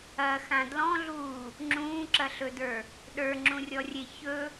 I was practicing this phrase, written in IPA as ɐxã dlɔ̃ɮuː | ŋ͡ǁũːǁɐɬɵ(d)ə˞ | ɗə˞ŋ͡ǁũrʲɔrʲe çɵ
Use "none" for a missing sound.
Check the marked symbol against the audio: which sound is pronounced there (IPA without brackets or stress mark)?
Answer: d